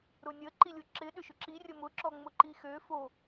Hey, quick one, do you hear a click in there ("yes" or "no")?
yes